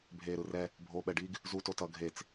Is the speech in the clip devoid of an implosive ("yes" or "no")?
no